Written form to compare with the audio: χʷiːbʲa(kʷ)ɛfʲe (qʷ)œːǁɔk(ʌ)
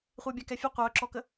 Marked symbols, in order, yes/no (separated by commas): no, yes, no